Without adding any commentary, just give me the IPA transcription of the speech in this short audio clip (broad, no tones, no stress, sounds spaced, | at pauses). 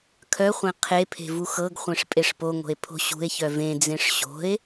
kʰ œ χʷ ẽ qʰ e pʰ e̤ v u x ɤ ɡ χʷ ẽ ʂ pʼ e ʂ p o ŋ o̤ e̯ pʰ o̤ ɕ ṳ e̯ ç œ v ẽ d͡z ẽ ʂ ɕ o̤ e̯